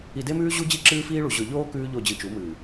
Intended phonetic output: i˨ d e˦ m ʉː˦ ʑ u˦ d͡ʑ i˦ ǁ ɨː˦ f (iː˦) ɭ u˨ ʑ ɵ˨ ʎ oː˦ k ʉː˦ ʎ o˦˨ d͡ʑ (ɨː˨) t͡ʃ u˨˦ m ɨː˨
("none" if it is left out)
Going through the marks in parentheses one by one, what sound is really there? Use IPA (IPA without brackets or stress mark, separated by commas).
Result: iː˦, ɨ˨